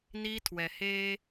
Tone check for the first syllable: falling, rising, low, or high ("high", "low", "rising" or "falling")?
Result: high